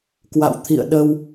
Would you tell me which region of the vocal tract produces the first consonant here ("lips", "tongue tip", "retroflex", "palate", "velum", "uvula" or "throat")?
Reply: velum